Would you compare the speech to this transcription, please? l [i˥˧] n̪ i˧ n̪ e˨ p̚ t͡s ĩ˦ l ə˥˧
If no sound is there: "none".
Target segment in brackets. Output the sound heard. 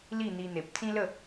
i˥˧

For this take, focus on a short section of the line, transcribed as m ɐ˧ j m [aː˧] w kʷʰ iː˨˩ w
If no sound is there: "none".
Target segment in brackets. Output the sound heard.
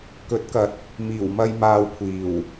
aː˧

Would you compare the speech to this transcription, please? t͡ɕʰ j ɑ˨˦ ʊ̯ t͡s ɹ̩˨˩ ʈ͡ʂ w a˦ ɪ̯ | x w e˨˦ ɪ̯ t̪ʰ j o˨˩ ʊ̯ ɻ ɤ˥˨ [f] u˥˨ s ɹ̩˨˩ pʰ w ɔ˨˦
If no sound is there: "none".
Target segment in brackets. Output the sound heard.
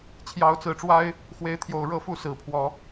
f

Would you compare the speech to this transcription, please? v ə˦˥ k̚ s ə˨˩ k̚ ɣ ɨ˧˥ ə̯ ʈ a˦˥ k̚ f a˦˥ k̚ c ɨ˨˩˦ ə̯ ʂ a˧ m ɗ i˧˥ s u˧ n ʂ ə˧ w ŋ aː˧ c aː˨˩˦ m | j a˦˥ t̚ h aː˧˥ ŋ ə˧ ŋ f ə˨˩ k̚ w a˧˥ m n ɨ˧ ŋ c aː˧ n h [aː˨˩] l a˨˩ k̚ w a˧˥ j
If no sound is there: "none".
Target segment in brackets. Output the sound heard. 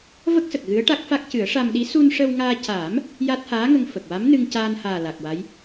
aː˨˩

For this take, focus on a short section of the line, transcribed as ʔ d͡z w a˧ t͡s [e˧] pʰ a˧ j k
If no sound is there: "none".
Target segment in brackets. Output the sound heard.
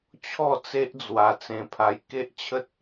ẽ˧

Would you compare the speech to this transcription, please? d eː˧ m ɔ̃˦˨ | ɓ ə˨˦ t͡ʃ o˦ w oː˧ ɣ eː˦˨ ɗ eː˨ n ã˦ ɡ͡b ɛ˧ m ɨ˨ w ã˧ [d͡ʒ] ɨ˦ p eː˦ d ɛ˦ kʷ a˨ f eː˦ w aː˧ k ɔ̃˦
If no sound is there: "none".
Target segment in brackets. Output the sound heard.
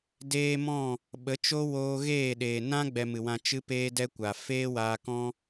t͡ʃ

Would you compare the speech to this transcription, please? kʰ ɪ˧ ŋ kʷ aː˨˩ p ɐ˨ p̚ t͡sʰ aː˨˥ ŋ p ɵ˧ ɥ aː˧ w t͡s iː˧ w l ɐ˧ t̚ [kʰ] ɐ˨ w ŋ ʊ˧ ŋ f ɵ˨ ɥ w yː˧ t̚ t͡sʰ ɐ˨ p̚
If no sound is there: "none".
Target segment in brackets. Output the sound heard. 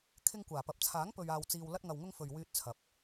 ŋ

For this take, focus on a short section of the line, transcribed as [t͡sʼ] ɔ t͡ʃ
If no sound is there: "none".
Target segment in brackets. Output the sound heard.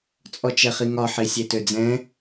t͡sʼ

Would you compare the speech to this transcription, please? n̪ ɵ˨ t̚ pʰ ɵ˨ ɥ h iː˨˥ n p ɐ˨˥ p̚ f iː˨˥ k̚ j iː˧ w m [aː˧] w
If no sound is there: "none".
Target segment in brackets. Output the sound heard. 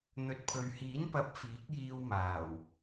aː˨˩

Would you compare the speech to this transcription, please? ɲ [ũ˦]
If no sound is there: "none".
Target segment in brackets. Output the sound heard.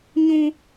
ũ˦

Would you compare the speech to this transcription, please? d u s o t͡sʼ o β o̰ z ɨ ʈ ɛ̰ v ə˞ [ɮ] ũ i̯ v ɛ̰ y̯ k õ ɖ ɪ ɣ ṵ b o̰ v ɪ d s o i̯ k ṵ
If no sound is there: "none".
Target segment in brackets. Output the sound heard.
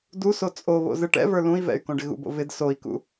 l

